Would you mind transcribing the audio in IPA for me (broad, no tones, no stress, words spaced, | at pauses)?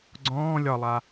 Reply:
ɡ͡ǀɔ̃ː lʲɒlˠa